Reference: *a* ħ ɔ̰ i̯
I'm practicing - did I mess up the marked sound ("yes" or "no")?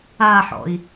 no